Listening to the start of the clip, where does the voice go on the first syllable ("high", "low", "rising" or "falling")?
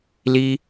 high